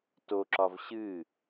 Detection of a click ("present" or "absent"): present